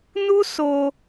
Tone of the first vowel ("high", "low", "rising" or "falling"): high